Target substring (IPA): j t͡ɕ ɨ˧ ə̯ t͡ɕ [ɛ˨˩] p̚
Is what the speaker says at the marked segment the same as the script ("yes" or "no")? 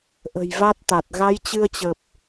no